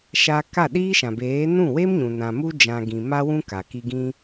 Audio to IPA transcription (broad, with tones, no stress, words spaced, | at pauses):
ʃa˧ka˦˨ ɗiː˦ʃã˨beː˨˦ nũ˦˨ we˦mɲũ˨nã˨ mu˧d͡ʒã˨ ɡĩ˨ ma˧wũ˧ ka˨ki˧ ɡĩ˧